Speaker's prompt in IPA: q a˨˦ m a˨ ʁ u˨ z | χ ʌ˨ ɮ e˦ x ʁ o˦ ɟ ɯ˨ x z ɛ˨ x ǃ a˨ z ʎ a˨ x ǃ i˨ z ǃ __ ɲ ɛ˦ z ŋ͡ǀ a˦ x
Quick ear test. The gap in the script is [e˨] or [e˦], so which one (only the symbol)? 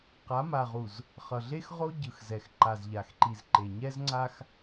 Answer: e˨